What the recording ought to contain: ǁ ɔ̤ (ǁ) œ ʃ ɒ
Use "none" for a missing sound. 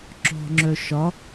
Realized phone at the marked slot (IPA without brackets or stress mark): ŋ͡ǁ